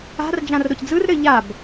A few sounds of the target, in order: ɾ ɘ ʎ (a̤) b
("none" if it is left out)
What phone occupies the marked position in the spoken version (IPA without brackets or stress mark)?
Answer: a